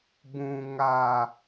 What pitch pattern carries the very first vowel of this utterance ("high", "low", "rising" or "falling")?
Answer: low